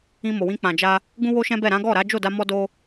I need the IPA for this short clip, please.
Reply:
ĩ˧ m o˨ w ĩ˧ k͡p ã˨ d͡ʒ a˧ | ɡ ũ˦ w o˦ ʃ ɛ̃˦ b ɛ˦˨ ɾ ã˨˦ ɡ ɔ˦˨ ɾ a˨˦ d͡ʒ o˦˨ d a˧ m ɔ˦ d o˦

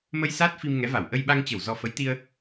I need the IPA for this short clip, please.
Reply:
m ə˧ j s aː˦˥ t̚ f i˧ m ŋ ɛ˨˦ v a˧˩ w ʔ ə˧ j ɓ a˧ ŋ t͡ɕ ə˧˩ w z ɔ˧ f ə˨˦ j t̪ i˧ ə̯

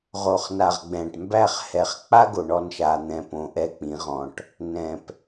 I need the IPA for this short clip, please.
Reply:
ʁ o˨ χ n a˨ ʁ ɡ͡b ɛ̃ː˨ ʈ m b æ˦˨ χ h ɛ˨ χ k͡p a˦ ɡ o˨ ɳ ɔ˦˨ n ʃ a˨ n̪ ɛ̃˨ p õ˨ ʔ ɛ˦ k͡p ĩ˨˦ ʁ ɔ̃˨ ʈ | n ɛ̃˨ p

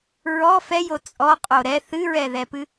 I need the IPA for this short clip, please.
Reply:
ɹ ɔ f ɛ j o t͡sʼ ɔ qʼ o ɾ ɛ θ ɨ ɹ ɛ ð ɛ p ɨ

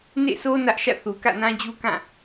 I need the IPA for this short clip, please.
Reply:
n ḛ˦˨ sʰ o˦ n ä˦ ʔ ʃ ä̰˦˨ θ u˨ k ä̰˦˨ n ã˦ d͡ʑ u˦ k ã˦˨

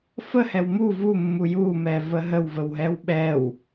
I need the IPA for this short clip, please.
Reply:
f ə h ɛ w m u v u mː u j u m ɛ v ə ɦ ə w v ə w ɦ ɛ w ɓ ɛ w

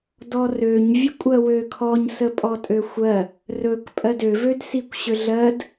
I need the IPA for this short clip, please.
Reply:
d ɔ r ø ɲ vʲ ə kʷʼ ɜ w ø kʰ ɔ ɲ s ə pʼ ɔ tʼ ø xʷ ɜ | r ɵ k pʼ ɜ d ø v ø d s i kʷ ɕ ø ɮ ɜ d

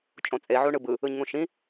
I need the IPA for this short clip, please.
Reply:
t͡ʃʼ õ t͡sʼ e ʕ u ɳ ɯ b ɯ | ɯ ɲ ŋ ũ ʃ ĩ

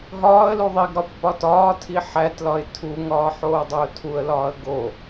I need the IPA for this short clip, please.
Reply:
ɦ ɒː ə̯ l u ðˤ i ɡ ɾ ɒ pː ɒ t ɒː tʰ i ħ æ t l ɒ ɪ̯ tʰ u ŋ ɒː ħ oː dˤ e ʊ̯ tʰ u ə̯ l ɒː ə̯ ɡ o

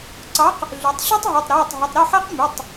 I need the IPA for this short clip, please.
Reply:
ǀ ɑ˨˥ q | ɮ ʉ˩˧ tˤ ɕ ɵ˦ tˤ ɦ ɵː˩˧˩ tˤ ɾ eː˩˧˩ tˤ ɦ ɵ˩˧˩ tˤ ɾ ø˥˩ ħ æ˦ q m ʉ˩˧˩ tˤ

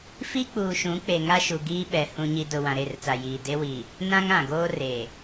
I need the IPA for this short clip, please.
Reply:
f i˦ k͡p uː˨ ʃ ũ˨˦ k͡p e˨ ŋ a˦ ʃ u˨ ɡ iː˦ ɓ ɛ˨ h ũ˦ ɲ i˦ d ʊ˨ w ã˨ ɾ e˦˨ r t͡s a˨ j iː˨ d e˦ w i˨ | n ã˦ ŋ ã˨ ɡ oː˦ r e˨

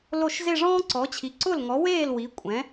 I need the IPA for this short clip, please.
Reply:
l o˥˩ ʃ z e˥˧ ʐ ɔ̃ː˥ ǀ ɔ˩˥ t͡ɕʰ i˩˥ ǀ ʊ˥˩ l ŋ ɔ˩˥ w eː˥˩ l w i˩˥ kʷʼ ɛ̃˩˥

